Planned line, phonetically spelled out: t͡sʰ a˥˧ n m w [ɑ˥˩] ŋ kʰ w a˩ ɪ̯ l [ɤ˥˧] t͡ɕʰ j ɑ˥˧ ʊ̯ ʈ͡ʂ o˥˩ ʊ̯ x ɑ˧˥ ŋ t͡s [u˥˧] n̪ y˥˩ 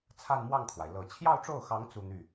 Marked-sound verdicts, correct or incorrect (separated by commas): correct, incorrect, correct